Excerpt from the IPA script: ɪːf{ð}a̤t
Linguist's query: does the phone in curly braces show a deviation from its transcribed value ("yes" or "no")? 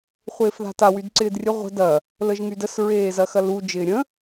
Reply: no